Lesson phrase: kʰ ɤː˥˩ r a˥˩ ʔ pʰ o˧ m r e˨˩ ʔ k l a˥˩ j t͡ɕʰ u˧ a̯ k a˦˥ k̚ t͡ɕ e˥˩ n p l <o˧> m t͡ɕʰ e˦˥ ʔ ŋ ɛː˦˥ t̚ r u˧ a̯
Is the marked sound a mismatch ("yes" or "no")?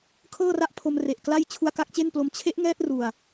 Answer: no